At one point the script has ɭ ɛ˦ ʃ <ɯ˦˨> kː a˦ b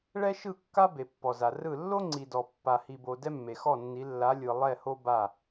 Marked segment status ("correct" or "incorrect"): correct